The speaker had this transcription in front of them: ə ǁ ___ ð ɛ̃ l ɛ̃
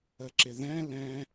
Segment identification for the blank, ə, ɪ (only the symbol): ɪ